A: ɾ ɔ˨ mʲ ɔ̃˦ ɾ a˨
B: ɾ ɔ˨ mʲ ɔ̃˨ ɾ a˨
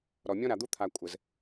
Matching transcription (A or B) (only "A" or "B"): A